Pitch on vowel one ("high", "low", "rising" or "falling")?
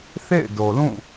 falling